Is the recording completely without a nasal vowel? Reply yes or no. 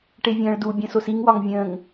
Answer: no